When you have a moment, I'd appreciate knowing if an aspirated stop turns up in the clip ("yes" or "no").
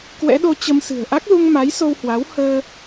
no